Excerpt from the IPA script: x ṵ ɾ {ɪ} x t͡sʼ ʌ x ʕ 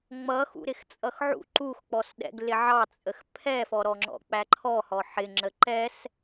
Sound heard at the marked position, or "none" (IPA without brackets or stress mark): ɪ